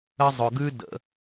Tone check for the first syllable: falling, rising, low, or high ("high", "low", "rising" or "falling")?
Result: high